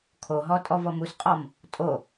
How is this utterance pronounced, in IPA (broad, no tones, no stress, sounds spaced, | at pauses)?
kʰ o ɦ ɔ tʼ ɔ v ɔ m u s qʼ ɔ m | tʼ o